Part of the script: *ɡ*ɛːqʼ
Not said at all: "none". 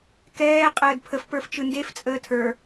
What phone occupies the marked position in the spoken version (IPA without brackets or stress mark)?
k